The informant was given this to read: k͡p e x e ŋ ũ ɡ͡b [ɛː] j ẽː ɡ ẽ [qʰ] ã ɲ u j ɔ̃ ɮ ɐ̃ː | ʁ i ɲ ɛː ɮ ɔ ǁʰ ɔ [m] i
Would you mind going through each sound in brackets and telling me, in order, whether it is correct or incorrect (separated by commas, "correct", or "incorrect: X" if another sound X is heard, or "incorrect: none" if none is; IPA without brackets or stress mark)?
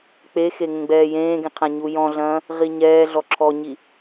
correct, correct, incorrect: ɲ